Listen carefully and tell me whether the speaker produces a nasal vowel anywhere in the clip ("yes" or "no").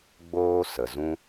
yes